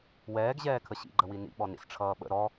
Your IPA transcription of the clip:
w ɛː ɡ ʑ ɛː kʰ ə ɕ ḭ ɡ͡ǃ ə w i n ḭ ɓ ɔ n ḭ s ʈ͡ʂʰ ʌː ɓ ə̰ ɾ ɔ

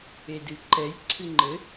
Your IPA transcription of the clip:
e d ɨ ǃ ɛ j ǀʰ ɨ ŋ͡ǃ ɘ

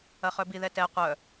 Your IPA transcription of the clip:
ɐ χ œ b i ð ɛ t ɛ qʷ œ

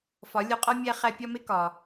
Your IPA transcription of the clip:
f ɒ˩˥ lʲ o˧ qʼ ɒ˥ mʲ æ˥ χ æ˥ pʲ ɒ˥ m e˥ k ɒ˩

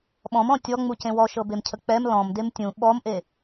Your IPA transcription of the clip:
ɓ ɔ̃ m ɔ̃ tʲ ɔ ŋ͡m u c ẽ w ɔ ʃ ɤ b e m cʰ ə k͡p ɛ m l ɔ̃ m d e m tʲ ũ ɓ ɔ m ʔ e

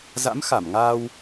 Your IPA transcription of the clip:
z a̰˧˥ m x a˧˩ m ŋ aː˧ w

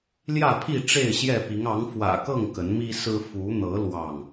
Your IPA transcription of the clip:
l j ä˥˨ pʰ i˥˨ ʈ͡ʂ e˥˨ ɪ̯ ɕ j ɛ˥˨ p i˨˦ ŋ ɑ˨˦ ŋ f w ä̰˨˩ k ɤ˥˨ ŋ k ə˨˦ n m i˦ s ɹ̩˦ f u˨˦ n̪ ɤ˨˦ l w ɑ˥˨ ŋ

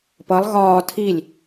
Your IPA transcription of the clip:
p ʌ lˠ ɣ ɒː tʰ i lʲ

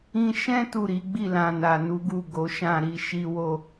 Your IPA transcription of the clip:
ĩ˧ ʃ ɛ̃˦ t u˦˨ ɾ i˨˦ ɡ͡b i˦˨ l ã˨ n a˨ n u˨˦ ɡ u˦˨ ɡ o˨˦ ʃ ã˦˨ ɾ i˧ ʃ i˦ w o˦˨

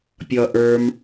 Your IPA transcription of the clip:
pʲ ʌ ʔ ə˞ m

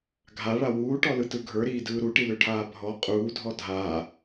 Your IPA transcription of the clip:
ɡʱ a ɭ a w uː ʈ ɔ l ɯ t ɯ ɡʱ ə˞ ɾ iː d ɯː ɾ u ʈ i l ø ʈʰ aː bʱ ɔ qʼ uː dʱ ɔ dʱ aː

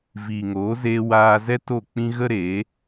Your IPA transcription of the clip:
v iː˨ ŋ oː˨˦ z eː˧ w aː˧ z ɛ˦ t o˦˨ k͡p ĩ˦ ɣ ə˦ ɾ e˨˦

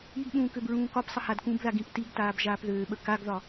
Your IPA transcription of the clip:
i ɡ ɓ ũː k ø b ɹ ũː k ɒ p sˤ ə h a d k ũ b ð a ɡ ĩ p t i ɡ t aː b ʒ aː p ð øː ɓ ə k a ɡ ð ɒ

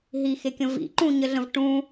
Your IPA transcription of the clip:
ɦ i x e kʲ ə̃ v ḭ ǃ ũ ɲ ə ɮ ə̃ v ʈ ũ

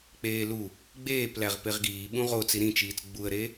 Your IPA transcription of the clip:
k͡p eː l u | ɡ͡b eː p l æ ʁ p e ʁ ɡ iː ɓ ũ ʁ o t͡s i ɾ ĩ t͡ʃ iː t͡s ɡ͡b u ə̯ ɾ e

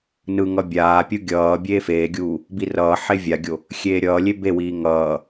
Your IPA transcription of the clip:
n ɯ ŋ ʌ bʲ aː pʲ u ɡʲ ʌː bʲ eː f eː ɡʲ uː | b i r ʌː ħ e vʲ a ɡʲ o | xʲ eː ɾʲ ʌː lʲ e b e w iː ŋ ʌː

